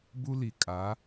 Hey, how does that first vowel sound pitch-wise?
high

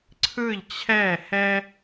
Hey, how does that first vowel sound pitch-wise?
falling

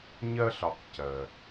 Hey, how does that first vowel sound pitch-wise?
high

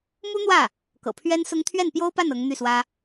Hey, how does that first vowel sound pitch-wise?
high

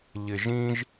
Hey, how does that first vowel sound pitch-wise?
low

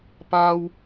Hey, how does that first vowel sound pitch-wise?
high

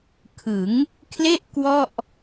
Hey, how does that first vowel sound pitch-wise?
rising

